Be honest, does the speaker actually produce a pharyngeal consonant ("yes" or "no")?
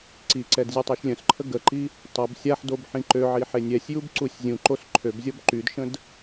yes